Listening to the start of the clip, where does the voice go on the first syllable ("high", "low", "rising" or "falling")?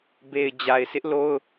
low